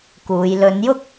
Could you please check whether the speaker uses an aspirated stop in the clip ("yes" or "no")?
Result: no